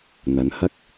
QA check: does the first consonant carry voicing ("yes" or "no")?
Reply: yes